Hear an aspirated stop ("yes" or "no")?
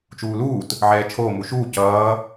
yes